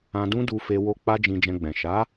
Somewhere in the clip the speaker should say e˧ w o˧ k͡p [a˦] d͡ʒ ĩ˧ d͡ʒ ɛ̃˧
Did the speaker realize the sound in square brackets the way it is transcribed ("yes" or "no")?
yes